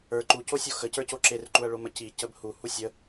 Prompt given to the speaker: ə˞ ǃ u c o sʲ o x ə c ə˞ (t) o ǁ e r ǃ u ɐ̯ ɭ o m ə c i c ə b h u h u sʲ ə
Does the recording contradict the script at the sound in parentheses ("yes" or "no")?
yes